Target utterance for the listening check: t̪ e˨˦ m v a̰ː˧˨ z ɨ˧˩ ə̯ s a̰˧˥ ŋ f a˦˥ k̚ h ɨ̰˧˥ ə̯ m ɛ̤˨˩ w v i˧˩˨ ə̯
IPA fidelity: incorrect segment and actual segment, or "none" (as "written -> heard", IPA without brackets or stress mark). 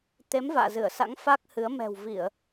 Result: ɨ̰˧˥ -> ɨ˨˦